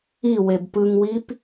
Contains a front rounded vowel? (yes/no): no